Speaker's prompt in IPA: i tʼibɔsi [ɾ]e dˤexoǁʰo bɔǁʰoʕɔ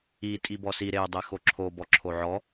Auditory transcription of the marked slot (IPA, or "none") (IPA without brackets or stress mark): ɾ